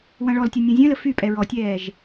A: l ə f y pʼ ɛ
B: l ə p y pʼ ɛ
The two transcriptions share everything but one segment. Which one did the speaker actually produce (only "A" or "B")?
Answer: A